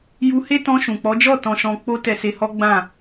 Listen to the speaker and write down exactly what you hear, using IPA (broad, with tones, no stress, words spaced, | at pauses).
ju˧he˦ tɔ̃˧ʃũ˨k͡pɔ˨˦d͡ʒɔ˦˨ tɔ̃˧ʃɔ̃˧k͡po˦ tɛ˧se˧hɔ˦ɡ͡bã˦˨